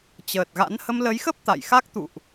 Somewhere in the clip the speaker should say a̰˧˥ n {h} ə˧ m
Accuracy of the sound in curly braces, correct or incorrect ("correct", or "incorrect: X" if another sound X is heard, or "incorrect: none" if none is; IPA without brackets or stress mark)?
correct